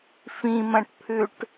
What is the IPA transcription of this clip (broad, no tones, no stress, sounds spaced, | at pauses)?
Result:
f ĩ m ɐ̃ ʈ pʰ ʉ ʈ